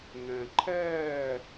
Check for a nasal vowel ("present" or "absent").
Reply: present